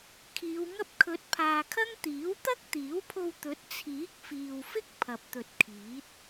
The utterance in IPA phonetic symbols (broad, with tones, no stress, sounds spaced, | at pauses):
kʰ iː˨˧ w ŋ ɐ˥ p̚ kʰ ɵ˨˥ t̚ pʰ aː˨ kʰ ɐ˥ ŋ t̪ iː˨˥ w t̪ ɐ˥ k̚ t̪ iː˨˥ w pʰ o˧ w t̪ ɵ˨˥ t̚ t͡sʰ iː˨˥ k̚ f iː˨ w f ɪ˥ k̚ pʰ ɐ˨ p̚ t̪ ɵ˨ t̚ kʰ iː˨˥ t̚